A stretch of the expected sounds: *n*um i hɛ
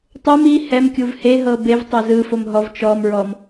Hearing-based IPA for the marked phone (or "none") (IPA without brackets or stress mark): tˤ